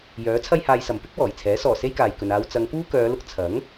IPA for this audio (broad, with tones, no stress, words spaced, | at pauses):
jœː˨˥ t͡sʰɐ˥jhaː˧jsɐ˨m pɪ˥k̚ wɔː˨˩jt͡sʰɛː˨˥ sɔː˨˩ se˥jkaː˨j kɵ˨naː˧w t͡sɐ˨˧ŋpuː˥kœː˨˧lʊ˧k̚ t͡sʰɐ˨˥ŋ